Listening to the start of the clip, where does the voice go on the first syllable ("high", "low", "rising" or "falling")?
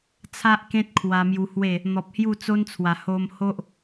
high